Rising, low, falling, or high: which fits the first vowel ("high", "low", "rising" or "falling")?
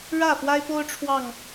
falling